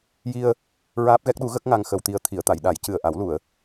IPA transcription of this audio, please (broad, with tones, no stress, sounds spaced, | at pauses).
j i˧ ə̯ | ɹ aː˦˥ p̚ ɣ ɛ˦˥ k̚ ɗ u˧˥ ɣ ə˦˥ k̚ ŋ a˧ ŋ x ə˧ w t̪ i˧ ə̯ t̪ʰ i˨˩˨ ə̯ t̪ a˨˩˨ j ɗ a˨˩˦ j c ɨ˨˩ ə̯ ʔ a˨˩˦ w l u˨˩˨ ə̯